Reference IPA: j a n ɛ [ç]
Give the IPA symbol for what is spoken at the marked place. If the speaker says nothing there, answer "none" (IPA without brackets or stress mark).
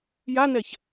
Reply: ç